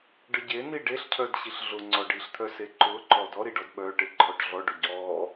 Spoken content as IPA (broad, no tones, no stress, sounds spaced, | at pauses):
ɖ ə ɟ e n i ɖ e ɬ cʰ œ d ɕ i ɬ ɮ ʊ ŋ͡ǀ ɔ ɖ i ɬ t̪ʰ œ s e ǃ ʊ ǃ ɔ d ɔ ɾ i ɖ ɔ d ɓ œ ʈ e ǃʰ ɔ ʈ ɮ ɔ ɖ ʊ ɟ ɔ